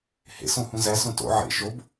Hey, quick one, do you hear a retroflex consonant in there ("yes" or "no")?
no